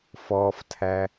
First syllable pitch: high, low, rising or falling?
low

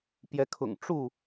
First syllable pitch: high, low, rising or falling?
rising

